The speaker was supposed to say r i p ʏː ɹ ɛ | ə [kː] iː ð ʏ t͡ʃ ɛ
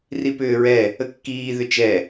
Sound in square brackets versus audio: correct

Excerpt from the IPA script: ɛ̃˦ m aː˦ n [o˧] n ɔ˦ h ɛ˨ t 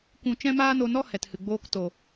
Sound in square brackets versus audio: correct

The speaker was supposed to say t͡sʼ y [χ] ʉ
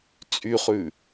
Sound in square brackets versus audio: correct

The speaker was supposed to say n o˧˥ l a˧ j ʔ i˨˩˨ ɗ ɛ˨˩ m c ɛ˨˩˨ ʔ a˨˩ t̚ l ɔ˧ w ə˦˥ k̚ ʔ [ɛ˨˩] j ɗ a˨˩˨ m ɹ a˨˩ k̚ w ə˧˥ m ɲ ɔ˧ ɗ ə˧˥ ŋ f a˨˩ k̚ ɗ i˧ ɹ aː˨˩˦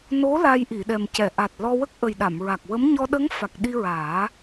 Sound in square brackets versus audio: incorrect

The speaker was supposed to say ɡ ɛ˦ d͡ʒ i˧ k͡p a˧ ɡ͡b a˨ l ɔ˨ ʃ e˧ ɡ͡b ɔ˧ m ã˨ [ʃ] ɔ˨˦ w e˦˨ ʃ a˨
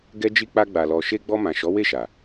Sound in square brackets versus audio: correct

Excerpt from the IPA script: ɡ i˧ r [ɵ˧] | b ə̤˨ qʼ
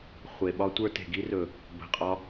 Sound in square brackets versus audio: incorrect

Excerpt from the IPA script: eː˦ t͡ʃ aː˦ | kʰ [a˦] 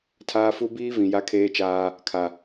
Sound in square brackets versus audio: incorrect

